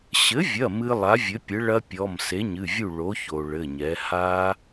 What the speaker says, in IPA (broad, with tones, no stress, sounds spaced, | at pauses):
ɕ ɘ˩˥ vʲ ɐ˩˧˩ m ɨ˦˥ lˠ a˩˥ vʲ ɘ˩˥ pʲ ɘ˩˥ ɭ ɐ˦˥ pʲ ɔ˩˧˩ m s e˩˥ ɲ ɨ˩˧˩ vʲ u˥˨ ɭ o˩˥ ç o˩ ɭ ɘ˩˧˩ ɲ ɛ˩˥ h a˦˥